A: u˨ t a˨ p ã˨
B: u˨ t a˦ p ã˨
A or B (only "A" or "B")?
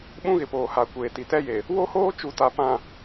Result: A